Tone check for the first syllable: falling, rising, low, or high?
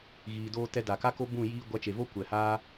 low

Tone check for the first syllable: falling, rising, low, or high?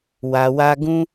low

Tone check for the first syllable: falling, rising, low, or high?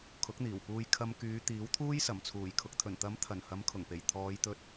rising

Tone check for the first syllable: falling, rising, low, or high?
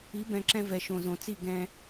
rising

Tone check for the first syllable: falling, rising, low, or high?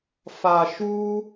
low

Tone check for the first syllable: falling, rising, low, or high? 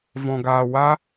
low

